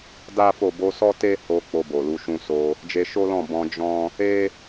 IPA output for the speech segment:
da˦fo˦˨ bo˨˦sɔ˦te˦ ho˧ k͡po˧bo˨lu˨˦ ʃũ˧so˧ | d͡ʒe˧ʃo˦lɔ̃˦˨ bɔ̃˧d͡ʒɔ̃˦ | e˦

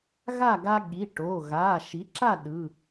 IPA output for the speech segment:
ɣa˥˨ɡa˦ ɠi˩˧˩ ʈo˩˧˩ ɣa˩˧˩ ʃi˩˥ǁa˥˨ ɗɯ˩˧˩

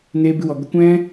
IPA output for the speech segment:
neː˦bɨ˦wɔ˧ ɡə˧kʷɛ̃˦

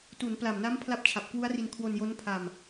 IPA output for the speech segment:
tu˩˦npla˨˩mna˦˥m pʰla˦˥p̚t͡ɕʰa˨˩p̚kwu˦˥a̯ri˧n kʰwo˧njo˦˥npʰa˧m

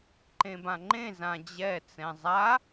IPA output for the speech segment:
ǃẽbãŋ͡ǃẽzã d͡ʑɛ t͡sɛ̃zˤa

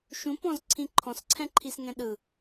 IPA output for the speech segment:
ʃũpɔ̃zǀʰĩ ǃʰɔ̃sǀʰɛ̃ǃʰisŋɛ̃ ɗɯ

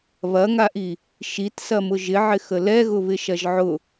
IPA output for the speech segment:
βɐŋaʔi | ʃitsɐmʊ ʒɪʕɪxə lɛɣʊ βɪʃɐʒʕʊ

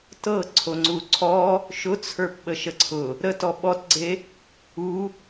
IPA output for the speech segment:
tɤ ǀʰoŋ͡ǀuǀʰɔ | ʃʊt͡sʰə˞p ɓəʃəǀʰʊ | ɾətɔ ɓɔtɡ͡ǀe | u

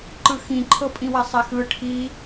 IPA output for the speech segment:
ǃɯxĩǃʰɤ pʼĩwɛsˤexɯ ʈʰi

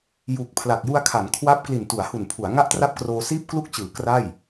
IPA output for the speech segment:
ju˨˩k̚ pʰla˨˩k̚ju˧a̯kʰa˩˦n kʰwa˦˥p̚ kli˨˩ntu˩˦a̯hu˨˩npʰu˩˦a̯ ŋa˥˩ʔtra˥˩p̚kroː˧ siː˥˩p̚klu˥˩k̚t͡ɕɯː˩˦ kra˥˩j

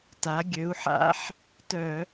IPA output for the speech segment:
ta˩˧ ɡʲø˩˧u̯ħa̰˦˥ħ | tœ˧˩˧

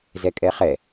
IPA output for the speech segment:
zɛkʼɛχɛ

